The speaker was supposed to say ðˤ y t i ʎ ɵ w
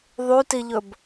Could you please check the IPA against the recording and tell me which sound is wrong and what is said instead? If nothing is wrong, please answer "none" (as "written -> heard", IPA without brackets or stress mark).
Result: w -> b